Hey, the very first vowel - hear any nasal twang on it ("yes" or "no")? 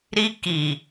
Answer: no